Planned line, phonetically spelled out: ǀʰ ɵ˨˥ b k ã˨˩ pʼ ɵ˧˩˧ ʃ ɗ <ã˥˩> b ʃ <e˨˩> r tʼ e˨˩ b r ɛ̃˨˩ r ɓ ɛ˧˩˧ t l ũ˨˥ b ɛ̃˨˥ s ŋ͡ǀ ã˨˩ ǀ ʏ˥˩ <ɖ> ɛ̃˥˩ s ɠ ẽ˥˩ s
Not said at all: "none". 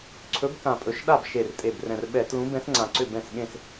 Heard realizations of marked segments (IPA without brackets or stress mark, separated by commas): a˥˩, e˨˩, b